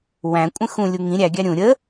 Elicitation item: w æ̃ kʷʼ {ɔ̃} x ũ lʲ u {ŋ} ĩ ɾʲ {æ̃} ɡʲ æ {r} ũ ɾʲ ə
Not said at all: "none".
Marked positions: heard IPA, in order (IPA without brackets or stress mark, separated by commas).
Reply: ə̃, ŋ, æ, ɾʲ